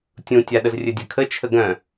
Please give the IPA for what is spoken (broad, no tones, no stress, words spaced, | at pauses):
tʲũtʲaɗəz rʲɘdʲɘkʰə t͡ʃʰəɡœ̃